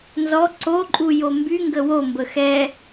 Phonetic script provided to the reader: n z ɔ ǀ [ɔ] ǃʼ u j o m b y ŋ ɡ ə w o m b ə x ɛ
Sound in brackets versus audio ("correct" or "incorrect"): incorrect